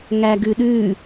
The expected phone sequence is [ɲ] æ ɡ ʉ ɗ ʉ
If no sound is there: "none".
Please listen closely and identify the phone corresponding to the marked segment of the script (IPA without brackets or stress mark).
ŋ